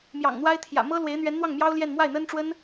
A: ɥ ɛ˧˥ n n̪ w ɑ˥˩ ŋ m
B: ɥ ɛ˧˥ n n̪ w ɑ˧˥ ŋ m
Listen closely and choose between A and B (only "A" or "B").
A